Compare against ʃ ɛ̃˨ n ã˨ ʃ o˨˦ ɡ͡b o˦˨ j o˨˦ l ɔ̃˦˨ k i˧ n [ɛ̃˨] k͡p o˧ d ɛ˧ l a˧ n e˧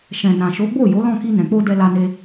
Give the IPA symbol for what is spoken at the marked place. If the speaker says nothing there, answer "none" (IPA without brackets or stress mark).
ɛ̃˨